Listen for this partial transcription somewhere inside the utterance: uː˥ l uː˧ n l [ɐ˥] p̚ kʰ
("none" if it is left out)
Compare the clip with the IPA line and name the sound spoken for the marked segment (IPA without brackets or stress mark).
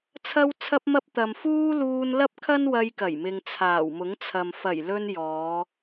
ɐ˥